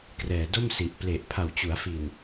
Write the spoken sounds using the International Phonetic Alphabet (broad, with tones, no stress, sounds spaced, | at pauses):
k r ɛː˨˩ d o˥˩ m s i˨˩ ʔ p l e˨˩ ʔ pʰ a˨˩ w t͡ɕ u˩˦ a̯ f i˨˩ n